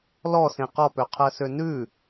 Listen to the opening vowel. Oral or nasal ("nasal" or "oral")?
oral